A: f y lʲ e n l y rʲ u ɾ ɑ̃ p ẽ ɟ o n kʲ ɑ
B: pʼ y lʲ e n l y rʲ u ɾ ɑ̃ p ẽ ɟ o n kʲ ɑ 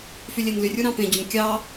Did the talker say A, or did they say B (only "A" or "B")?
A